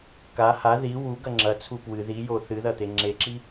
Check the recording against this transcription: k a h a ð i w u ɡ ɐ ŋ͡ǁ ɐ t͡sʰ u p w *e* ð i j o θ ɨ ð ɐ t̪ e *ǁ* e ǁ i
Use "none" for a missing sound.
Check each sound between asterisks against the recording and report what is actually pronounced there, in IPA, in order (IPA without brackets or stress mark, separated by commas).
ɨ, ŋ͡ǁ